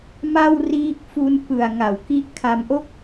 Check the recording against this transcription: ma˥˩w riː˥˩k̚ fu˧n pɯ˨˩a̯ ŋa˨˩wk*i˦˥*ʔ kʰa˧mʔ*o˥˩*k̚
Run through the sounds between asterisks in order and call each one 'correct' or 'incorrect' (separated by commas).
correct, correct